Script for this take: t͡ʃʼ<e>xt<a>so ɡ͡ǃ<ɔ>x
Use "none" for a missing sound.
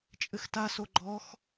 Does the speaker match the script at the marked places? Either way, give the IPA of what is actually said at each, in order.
ɘ, a, ɔ

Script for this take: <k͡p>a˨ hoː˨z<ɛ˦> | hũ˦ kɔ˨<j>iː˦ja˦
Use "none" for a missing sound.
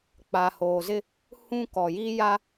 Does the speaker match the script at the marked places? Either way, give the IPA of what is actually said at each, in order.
k͡p, ɪ˦, j

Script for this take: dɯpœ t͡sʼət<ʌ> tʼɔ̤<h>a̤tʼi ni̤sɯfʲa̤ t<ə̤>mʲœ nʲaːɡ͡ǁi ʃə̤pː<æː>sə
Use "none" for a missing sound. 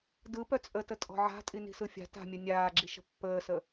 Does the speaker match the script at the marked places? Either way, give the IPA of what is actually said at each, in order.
ə, ʕ, a̤, əː

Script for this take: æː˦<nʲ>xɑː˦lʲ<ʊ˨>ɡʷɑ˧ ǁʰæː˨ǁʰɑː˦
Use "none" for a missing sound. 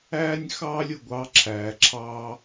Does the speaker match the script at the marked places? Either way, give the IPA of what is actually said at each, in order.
nʲ, ʊ˨

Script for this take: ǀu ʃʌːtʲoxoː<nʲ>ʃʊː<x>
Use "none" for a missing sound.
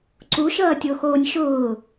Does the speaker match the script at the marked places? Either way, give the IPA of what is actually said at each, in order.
nʲ, none

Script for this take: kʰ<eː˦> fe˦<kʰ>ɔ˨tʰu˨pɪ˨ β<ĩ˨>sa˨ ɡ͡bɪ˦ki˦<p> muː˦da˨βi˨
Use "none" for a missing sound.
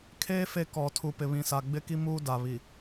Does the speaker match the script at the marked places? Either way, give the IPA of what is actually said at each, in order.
eː˦, k, ĩ˨, none

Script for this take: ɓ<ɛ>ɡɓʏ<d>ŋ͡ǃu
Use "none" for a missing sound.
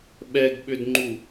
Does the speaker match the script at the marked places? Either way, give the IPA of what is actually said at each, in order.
ɛ, d

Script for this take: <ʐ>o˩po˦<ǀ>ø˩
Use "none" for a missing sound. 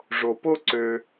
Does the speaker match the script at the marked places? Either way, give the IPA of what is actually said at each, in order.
ʐ, ǀ

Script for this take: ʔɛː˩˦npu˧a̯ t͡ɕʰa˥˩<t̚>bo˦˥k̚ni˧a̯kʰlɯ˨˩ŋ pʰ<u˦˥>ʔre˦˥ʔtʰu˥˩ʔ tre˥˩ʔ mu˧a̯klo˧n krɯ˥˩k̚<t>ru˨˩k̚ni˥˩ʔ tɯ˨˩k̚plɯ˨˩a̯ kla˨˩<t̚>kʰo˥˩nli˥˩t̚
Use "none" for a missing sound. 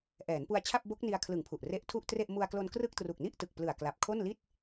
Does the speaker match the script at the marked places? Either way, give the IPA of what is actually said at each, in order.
p̚, u˨˩, t, p̚

